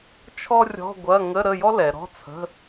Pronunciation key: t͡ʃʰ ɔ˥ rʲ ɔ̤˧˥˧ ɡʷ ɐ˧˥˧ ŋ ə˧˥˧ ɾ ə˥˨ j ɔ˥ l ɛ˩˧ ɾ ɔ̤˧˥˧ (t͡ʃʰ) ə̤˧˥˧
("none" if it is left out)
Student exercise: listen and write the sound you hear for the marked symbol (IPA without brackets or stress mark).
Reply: t͡sʰ